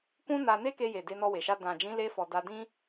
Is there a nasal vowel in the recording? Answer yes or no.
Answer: yes